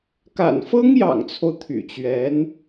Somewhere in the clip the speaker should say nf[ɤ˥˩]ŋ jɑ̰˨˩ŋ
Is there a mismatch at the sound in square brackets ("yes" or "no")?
yes